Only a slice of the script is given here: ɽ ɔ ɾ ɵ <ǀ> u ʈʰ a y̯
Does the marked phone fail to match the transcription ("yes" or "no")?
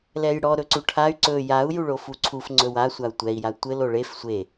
no